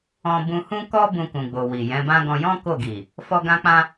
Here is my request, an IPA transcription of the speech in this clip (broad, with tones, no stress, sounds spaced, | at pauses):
ɔ̃˧ b ũ˧ h ũ˦ k ɔ˦ b ũ˧ k ũ˨ ɡ͡b o˨ w i˨ j ɛ̃˨˦ b ã˦ ɡ ɔ̃˧ j ɔ̃˦ k o˦˨ ɡ i˨ | f ɔ˧ ɡ ã˧ k͡p ã˧